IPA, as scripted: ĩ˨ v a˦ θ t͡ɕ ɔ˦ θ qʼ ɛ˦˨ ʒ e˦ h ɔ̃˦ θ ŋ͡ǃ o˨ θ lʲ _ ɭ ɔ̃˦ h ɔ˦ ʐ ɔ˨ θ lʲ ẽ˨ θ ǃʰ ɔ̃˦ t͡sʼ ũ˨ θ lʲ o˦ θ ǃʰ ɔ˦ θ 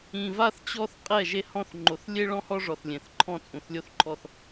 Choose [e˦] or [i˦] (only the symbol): e˦